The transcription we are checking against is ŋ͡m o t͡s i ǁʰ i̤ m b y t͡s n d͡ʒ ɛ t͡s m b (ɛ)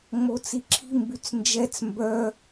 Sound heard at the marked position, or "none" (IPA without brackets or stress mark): œ